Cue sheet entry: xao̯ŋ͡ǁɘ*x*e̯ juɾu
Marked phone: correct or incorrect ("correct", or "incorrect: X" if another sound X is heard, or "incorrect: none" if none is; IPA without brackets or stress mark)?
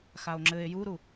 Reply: incorrect: none